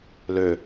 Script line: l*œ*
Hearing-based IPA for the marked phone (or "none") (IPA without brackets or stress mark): ø